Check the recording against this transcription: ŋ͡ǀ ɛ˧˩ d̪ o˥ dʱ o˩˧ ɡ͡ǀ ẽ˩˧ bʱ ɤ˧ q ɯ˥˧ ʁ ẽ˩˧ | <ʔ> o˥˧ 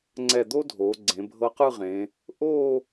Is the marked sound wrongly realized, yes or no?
no